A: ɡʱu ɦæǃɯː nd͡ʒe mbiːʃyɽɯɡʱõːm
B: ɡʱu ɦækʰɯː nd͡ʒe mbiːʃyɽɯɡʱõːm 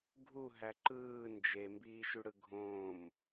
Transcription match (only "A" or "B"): A